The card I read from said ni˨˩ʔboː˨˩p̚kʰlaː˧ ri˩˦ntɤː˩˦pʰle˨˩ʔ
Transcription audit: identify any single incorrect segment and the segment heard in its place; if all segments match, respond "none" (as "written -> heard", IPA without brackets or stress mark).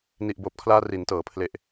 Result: none